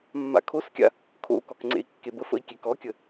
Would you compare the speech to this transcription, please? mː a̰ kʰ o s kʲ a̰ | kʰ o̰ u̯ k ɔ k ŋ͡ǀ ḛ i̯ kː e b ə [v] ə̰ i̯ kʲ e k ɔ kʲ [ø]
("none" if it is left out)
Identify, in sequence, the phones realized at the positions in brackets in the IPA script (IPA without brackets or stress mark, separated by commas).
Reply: f, ə